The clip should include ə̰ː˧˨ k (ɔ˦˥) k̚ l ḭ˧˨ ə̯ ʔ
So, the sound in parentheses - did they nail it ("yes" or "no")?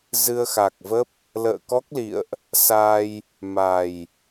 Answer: yes